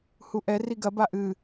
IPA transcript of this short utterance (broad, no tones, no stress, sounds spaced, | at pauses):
h u ʔ ɛ r i ɡ ɐ b a ʔ ɨ